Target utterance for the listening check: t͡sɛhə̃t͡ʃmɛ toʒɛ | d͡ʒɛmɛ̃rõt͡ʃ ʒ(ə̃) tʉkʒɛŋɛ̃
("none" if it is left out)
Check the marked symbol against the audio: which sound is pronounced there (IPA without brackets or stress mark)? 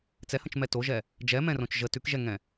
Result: ə